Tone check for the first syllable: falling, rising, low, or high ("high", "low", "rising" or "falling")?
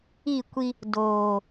falling